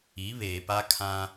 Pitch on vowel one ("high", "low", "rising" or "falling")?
rising